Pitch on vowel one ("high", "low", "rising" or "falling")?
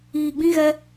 low